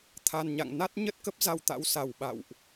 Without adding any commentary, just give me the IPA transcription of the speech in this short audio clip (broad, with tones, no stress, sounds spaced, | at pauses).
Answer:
t̪ʰ a˨˩ n ɲ a̰˧˨ ŋ n a˦˥ t̚ ɲ ə˦˥ t̚ k ə˦˥ p̚ z a˧ w t̪ a̰˧˥ w s a˨˩ w ɓ a̰˧˨ w ʔ